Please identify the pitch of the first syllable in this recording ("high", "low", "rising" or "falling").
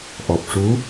low